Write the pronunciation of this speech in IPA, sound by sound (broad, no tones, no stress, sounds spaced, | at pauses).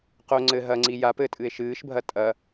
q o ŋ͡ǀ ɘ ɦ ɐ ŋ͡ǀ i j a p ɘ tʼ ɨ e̯ ʃ ɨː ʃ bʱ ɐ tʼ ɐ